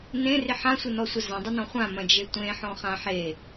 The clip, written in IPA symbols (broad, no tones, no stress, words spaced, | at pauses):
nẽrɪ ħãsʷɪnɔsʷɐ zɐ̃dˤɪnɔ̃ χʷãmɐ̃d͡ʒe tʷẽħɔ̃χã ħe